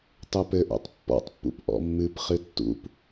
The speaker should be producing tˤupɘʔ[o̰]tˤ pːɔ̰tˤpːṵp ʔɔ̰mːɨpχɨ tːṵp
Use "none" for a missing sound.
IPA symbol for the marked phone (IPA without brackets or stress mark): o̰